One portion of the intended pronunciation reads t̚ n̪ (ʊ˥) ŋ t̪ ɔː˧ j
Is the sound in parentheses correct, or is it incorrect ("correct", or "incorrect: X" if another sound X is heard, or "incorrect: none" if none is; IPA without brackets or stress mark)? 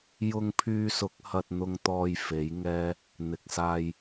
incorrect: ʊ˧